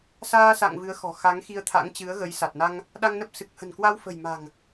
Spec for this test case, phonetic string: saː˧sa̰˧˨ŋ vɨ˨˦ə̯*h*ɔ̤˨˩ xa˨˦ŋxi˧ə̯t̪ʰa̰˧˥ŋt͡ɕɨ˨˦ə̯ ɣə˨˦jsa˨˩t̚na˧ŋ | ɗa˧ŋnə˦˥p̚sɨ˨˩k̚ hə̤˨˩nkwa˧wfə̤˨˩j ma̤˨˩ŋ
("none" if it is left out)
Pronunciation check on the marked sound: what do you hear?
x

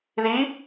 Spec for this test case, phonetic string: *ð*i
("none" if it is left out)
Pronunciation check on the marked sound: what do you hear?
ð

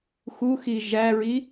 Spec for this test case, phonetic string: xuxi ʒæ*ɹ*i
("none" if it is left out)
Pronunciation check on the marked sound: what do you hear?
ɹ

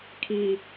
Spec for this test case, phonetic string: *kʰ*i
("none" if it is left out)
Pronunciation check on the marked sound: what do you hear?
kʰ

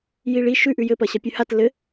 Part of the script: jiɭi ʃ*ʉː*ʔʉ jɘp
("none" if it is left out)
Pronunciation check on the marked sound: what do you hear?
ʉ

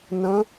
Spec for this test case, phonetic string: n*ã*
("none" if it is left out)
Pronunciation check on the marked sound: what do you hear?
ə̃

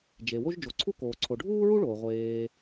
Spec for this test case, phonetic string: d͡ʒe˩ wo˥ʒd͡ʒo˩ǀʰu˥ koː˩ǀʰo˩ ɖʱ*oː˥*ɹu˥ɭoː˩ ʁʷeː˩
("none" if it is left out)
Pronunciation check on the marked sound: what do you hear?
uː˥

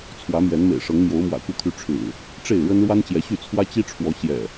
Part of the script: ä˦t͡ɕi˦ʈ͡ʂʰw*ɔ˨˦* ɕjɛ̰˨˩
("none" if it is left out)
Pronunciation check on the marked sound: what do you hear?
ɔ˨˦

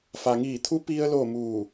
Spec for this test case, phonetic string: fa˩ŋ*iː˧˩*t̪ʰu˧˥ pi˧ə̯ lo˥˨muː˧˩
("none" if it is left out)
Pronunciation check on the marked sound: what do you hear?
iː˧˩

